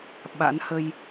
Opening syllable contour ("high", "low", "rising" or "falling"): rising